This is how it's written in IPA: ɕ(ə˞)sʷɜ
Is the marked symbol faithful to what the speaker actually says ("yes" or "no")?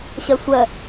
no